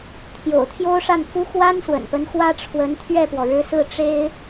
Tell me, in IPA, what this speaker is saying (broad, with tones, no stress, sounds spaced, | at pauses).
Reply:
t̪ʰ j o̰˨˩ ʊ̯ t̪ʰ j o˥ ʊ̯ ʂ a˥˩ n k u˥ x w a˥ n s w ə̰˨˩ n p ə˧˥ n x w ä˥ ʈ͡ʂʰ w ə˧˥ n t̪ʰ ɥ ɛ˥˩ p w ɔ˩ ɻ ɻ̩˧˥ s ɹ̩˥˩ ʈ͡ʂ e˥ ɪ̯